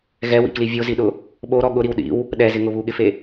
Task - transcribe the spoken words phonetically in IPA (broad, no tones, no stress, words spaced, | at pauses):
ɣɛwḭkli vʲoziɗʊ | ɓoɾɔ ɠʊɾiw ɗḭw | ɗɛzɪŋʊ βuɠɪfe